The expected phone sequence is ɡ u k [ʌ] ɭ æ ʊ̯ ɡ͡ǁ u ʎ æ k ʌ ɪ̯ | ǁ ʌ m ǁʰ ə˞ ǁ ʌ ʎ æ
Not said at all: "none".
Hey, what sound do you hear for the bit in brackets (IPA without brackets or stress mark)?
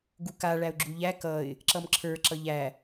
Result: a